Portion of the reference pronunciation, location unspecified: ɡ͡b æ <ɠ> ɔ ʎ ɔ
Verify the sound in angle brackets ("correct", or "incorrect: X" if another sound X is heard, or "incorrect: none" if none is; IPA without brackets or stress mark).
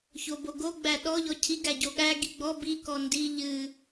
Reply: incorrect: ɗ